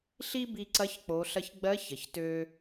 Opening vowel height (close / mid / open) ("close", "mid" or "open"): close